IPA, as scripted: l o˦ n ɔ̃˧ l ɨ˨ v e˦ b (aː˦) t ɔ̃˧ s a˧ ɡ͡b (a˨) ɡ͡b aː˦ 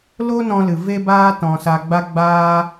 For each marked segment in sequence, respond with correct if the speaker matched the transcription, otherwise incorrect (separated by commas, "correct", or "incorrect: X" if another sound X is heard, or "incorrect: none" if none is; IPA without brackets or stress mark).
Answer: correct, incorrect: a˦